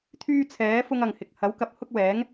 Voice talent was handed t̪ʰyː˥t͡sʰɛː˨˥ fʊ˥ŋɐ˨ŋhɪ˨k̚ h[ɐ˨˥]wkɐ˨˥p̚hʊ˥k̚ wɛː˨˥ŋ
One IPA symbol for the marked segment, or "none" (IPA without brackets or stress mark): ɐ˨˥